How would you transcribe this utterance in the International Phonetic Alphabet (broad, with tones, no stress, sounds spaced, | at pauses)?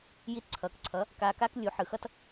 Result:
j i˧ t ǀʰ ʌː˨ k ǀʰ ʌ˨˦ | k aː˧ k aː˦ k lʲ u˨˦ ħ ɯ˨ x ʌ˧ t